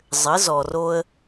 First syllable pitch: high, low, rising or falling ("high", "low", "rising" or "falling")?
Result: rising